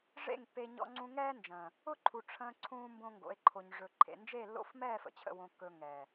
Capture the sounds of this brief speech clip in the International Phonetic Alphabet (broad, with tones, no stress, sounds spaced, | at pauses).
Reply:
ʐ ḛ˦˨ ŋ pː e˧ ɲ ɔ̰˧ ŋ͡ǀ ũ˧ ŋ ɛː˦ n d͡ʒ ə̃ː˨ | ʊ˦ ǃʰ u˨ ʈ͡ʂʰ ə̃ː˧ ǀʰ ũː˦ m b õ˦ ŋ ɡ o̰˨˦ e̯ ǃʰ o˧ ɲ ʐ ɵ˨ ǃʰ ḛ˨ n d͡ʒ e˦˨ lː o̰˦˨ f m ɛː˦˨ f ə̰˨ t͡ɕʰ ə̰˧ w õ˧ kː ɵ˧ ŋ ɛː˨